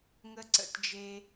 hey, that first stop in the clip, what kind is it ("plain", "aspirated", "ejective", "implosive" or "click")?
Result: click